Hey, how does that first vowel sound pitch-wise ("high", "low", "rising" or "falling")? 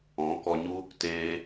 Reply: rising